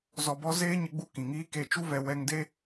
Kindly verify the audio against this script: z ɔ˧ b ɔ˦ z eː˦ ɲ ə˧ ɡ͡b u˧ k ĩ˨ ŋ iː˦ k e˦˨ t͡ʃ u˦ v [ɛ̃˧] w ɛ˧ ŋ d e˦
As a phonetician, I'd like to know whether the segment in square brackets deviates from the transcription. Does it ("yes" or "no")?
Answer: yes